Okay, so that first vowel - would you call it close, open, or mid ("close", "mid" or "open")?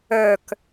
mid